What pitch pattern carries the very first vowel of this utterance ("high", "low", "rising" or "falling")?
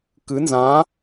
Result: rising